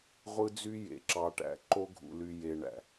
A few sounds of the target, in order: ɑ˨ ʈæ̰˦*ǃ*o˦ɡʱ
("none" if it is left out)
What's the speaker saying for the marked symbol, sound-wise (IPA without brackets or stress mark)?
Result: ǃ